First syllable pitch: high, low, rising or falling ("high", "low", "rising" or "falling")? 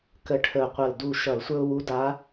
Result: rising